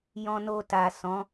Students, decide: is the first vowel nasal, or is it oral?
nasal